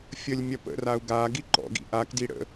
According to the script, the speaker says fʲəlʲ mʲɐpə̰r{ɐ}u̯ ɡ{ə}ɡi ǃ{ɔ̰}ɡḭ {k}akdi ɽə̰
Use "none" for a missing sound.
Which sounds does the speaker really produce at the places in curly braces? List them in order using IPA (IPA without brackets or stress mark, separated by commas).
a, a, ɔ̰, ʔ